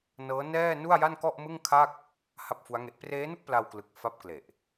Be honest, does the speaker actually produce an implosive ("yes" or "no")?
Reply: no